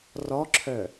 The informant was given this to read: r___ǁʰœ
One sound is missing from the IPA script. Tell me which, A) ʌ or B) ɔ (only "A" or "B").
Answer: B